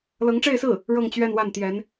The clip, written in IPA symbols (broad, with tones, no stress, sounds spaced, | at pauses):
l ɤ˧˥ ŋ ʈ͡ʂ e˥˧ ɪ̯ s ɹ̩˥˩ | ɻ ɤ˥˧ ŋ t͡ɕ ɥ ɛ˥˧ n w a˥˩ n t̪ j ɛ˧˥ n